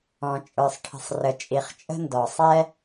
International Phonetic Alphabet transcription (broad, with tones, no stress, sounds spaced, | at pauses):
ɔ̃˩ t͡ʃʼ ə˞˩ sˤ ʈʰ ə̤˩ sˤ r ə˩ t͡ʃʼ i˩ χ t͡ʃʼ ə̤˥ n d ɔ˩ sˤ ɛ˥